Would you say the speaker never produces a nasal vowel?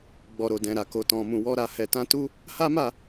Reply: no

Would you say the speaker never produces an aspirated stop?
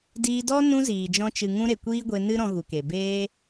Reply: yes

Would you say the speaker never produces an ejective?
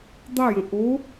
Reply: yes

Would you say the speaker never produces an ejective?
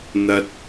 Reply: yes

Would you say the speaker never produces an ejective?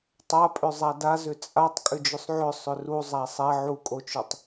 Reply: no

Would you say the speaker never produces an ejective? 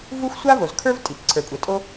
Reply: no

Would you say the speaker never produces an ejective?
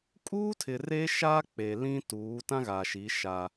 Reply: no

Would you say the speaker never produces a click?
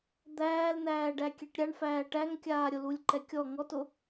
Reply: no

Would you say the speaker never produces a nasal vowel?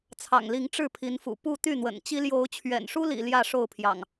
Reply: yes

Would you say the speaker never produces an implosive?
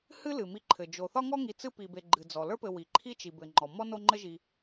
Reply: yes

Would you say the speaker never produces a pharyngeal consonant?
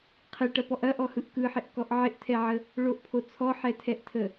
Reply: no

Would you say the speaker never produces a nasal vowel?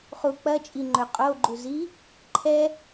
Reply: yes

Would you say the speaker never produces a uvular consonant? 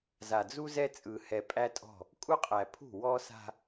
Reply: no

